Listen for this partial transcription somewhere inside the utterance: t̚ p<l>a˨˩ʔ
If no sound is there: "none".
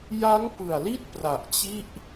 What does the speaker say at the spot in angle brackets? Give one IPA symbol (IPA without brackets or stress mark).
r